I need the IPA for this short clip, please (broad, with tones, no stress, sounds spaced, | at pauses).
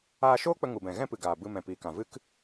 aː˧ ʃ oː˦ k͡p ə˧ ŋ u˨ b ɛ̃˨ ɣ ɛ̃˦ p ɨ˨ ɡ aː˨ b ɨ˧ m ɛ̃˨ p iː˨ k ã˨ v ɨ˦ k